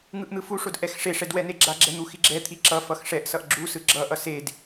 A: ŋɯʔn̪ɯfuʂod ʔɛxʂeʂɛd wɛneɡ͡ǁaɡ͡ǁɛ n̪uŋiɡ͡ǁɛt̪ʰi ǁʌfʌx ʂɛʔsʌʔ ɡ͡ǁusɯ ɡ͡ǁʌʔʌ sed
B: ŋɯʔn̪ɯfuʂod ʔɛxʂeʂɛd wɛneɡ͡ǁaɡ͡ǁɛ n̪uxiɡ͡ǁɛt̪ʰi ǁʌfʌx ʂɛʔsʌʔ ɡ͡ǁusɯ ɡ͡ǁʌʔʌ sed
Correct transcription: B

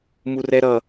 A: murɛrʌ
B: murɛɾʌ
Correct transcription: B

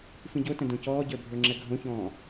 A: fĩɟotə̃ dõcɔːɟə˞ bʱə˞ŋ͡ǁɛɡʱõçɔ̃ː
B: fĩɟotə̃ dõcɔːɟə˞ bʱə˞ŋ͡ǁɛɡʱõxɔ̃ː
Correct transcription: A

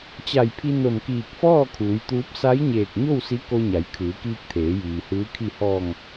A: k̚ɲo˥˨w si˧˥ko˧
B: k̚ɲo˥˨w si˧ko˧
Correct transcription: A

